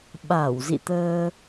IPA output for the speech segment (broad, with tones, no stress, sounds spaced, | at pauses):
ɓ a˧˩ w z ḭ˧˨ t̪ əː˧